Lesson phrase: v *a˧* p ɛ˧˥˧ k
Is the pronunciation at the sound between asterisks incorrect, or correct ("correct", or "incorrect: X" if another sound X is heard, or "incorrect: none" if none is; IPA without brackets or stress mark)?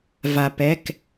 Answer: correct